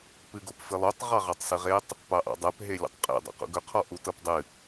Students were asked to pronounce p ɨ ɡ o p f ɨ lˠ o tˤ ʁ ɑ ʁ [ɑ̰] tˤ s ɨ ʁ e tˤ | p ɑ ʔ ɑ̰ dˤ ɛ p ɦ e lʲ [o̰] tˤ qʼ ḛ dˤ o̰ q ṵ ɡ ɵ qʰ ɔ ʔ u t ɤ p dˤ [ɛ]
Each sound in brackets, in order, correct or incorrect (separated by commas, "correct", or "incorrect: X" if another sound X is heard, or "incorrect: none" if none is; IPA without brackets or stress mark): incorrect: ɑ, correct, incorrect: ɨ